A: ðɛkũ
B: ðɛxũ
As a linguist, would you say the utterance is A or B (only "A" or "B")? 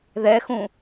B